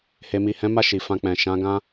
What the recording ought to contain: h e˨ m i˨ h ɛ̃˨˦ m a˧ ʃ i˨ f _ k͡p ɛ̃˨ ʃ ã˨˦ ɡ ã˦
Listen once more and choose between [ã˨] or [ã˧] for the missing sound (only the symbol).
ã˧